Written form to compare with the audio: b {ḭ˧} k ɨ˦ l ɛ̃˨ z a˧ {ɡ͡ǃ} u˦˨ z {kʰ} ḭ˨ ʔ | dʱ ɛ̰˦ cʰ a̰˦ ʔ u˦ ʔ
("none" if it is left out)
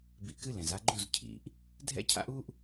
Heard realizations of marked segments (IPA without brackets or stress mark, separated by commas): ḭ˧, ɡ͡ǃ, cʰ